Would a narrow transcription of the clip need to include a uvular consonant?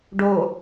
no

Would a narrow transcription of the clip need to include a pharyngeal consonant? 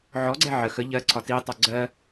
yes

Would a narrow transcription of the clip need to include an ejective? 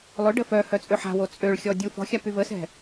yes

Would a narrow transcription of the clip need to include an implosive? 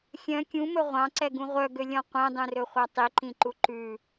no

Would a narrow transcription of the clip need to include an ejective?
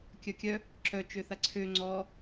no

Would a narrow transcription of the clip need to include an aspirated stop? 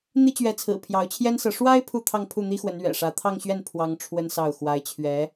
yes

